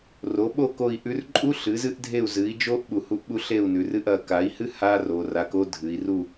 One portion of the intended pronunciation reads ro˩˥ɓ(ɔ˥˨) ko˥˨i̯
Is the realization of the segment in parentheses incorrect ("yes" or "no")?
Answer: yes